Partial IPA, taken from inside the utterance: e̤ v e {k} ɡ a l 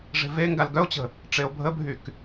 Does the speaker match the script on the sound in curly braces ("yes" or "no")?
no